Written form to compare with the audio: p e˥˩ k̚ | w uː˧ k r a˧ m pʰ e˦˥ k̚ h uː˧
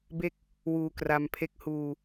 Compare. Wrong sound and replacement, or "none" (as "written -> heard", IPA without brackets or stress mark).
p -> b